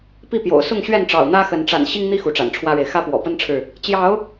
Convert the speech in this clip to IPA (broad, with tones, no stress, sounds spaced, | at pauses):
p i˥˨ p j o̰˨˩ ʊ̯ s ʊ˥˨ ŋ ɕ ɥ ɛ˥˨ n ʈ͡ʂ ɑ̰˨˩ ʊ̯ n̪ ä˦ x ə˨˦ n ʈ͡ʂ a̰˨˩ n ɕ i˦ ŋ n̪ i˦ x u˨˦ ʈ͡ʂ a̰˨˩ n ʈ͡ʂʰ w ä˦ ɻ e˨ ɪ̯ x ä˦ p w ɔ̰˨˩ p ə˦ n ʈ͡ʂʰ ɻ̩˨ | t͡ɕ j ɑ˨˦ ʊ̯